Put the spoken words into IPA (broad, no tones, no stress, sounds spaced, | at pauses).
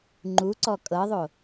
ŋ͡ǃ u ǀ ɔ kʼ ɤ ðˤ o